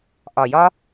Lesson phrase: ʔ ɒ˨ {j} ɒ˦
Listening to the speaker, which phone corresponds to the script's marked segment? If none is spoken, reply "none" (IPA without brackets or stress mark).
j